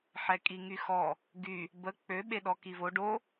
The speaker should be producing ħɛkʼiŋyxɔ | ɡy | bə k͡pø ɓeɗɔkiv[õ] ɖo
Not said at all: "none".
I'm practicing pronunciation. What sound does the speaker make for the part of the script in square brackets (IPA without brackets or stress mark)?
o